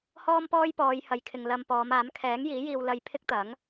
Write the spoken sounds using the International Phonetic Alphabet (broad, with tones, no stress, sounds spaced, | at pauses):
h ɔː˥ m p ɔː˥ j p ɔː˨˧ j h ɐ˨˧ j kʰ ɪ˨ ŋ l ɐ˧ m p ɔː˨˧ m aː˨˥ m kʰ ɛː˨˥ ŋ j iː˨˥ j iː˧ w l ɐ˧ j pʰ ɪ˥ k̚ t̪ ɐ˨˥ ŋ